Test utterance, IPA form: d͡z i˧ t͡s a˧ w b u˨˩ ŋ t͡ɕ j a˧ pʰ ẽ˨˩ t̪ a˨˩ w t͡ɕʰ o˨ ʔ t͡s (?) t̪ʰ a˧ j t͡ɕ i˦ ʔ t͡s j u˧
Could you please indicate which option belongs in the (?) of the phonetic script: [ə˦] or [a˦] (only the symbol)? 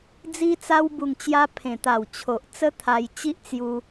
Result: ə˦